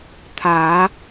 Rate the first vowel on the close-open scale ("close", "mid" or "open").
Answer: open